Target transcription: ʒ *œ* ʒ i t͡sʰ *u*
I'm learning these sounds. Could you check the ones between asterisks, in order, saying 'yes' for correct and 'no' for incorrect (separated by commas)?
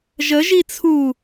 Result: no, yes